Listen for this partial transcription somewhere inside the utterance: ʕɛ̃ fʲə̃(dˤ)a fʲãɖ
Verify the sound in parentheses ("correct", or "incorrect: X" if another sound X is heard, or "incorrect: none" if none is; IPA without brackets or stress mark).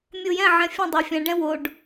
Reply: correct